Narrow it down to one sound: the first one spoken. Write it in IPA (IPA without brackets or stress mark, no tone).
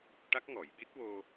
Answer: ʈ